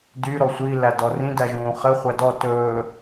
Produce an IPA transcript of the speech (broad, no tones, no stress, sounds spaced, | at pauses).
d y ɾ ɔ sʷ i l æ d ɔ r ĩ d æ ʒ ũː χ ɘ χʷ æ d ɔ t ɵː